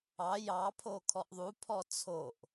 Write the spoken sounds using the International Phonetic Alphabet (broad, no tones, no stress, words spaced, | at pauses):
ɑ jɑ pʰokʰɔʔðˤu pʰɔt͡sʰoʔ